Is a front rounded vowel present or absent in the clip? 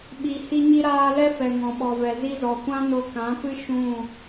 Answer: absent